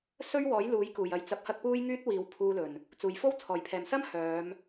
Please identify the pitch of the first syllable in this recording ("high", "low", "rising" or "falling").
high